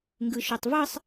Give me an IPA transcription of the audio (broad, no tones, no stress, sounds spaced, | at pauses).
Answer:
ŋ ɡ ɯ ʃ ø tˤ v ɯ sˤ